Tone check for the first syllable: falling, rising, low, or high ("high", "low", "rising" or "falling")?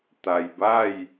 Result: low